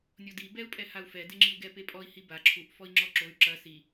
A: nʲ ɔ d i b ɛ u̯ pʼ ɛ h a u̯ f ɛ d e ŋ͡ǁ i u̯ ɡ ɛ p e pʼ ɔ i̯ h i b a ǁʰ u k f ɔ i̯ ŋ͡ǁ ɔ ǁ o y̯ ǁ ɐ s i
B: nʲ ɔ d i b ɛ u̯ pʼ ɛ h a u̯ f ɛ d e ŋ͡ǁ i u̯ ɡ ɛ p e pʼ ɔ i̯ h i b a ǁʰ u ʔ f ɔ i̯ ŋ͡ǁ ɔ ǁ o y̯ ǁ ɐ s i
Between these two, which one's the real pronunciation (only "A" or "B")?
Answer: B